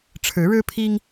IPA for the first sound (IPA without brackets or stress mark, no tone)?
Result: ʈ͡ʂʰ